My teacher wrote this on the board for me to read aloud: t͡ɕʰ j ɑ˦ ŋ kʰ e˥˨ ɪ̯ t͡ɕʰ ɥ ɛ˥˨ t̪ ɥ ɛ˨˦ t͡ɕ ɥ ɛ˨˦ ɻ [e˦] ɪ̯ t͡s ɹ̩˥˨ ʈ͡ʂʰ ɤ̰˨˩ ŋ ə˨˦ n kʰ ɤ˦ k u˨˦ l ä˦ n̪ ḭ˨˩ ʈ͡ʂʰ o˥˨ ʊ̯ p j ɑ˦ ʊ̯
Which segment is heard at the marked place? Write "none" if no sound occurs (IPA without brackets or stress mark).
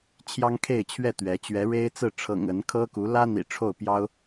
e˦